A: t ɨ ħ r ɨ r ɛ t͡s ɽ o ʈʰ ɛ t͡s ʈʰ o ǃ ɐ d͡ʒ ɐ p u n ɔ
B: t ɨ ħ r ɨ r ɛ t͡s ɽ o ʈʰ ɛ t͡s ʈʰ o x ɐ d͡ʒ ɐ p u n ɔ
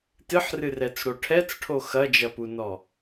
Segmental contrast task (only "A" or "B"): B